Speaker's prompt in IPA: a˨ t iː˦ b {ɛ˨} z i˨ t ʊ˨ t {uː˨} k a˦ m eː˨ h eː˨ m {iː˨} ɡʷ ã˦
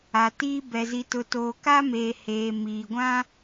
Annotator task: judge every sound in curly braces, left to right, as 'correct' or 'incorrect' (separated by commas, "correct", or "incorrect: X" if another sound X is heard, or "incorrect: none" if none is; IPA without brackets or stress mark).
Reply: correct, incorrect: oː˨, correct